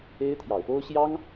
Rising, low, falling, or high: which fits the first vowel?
high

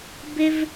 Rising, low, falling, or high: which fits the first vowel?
high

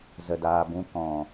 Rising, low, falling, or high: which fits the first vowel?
low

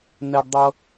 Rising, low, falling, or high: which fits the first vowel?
high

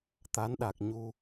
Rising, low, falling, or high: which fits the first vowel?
rising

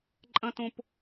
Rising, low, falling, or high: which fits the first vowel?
high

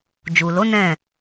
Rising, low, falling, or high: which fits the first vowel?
low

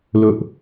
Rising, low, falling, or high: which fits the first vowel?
high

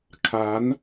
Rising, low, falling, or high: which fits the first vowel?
rising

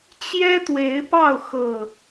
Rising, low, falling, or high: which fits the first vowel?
high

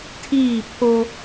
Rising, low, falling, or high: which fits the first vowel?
falling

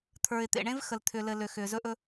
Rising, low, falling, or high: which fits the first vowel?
low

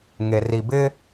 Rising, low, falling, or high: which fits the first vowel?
low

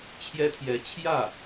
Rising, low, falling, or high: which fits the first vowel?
high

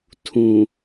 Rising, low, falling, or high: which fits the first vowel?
low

